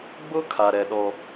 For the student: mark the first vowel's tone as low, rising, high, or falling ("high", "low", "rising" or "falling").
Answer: high